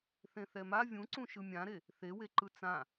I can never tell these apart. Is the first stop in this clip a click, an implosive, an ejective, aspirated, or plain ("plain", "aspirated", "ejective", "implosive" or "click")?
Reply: click